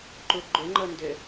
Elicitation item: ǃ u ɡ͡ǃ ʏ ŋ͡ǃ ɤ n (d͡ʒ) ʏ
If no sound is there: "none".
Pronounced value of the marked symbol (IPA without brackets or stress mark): d